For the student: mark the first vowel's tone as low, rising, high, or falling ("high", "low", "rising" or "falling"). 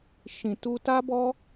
low